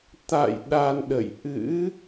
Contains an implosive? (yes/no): yes